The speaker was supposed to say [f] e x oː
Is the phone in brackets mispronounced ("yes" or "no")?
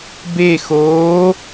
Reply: yes